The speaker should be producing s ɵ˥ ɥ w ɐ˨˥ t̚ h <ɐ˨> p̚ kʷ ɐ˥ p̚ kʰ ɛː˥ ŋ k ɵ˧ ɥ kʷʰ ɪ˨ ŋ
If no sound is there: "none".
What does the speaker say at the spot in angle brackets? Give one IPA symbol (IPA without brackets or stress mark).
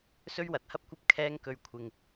ɐ˥